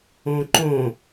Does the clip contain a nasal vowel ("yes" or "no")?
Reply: yes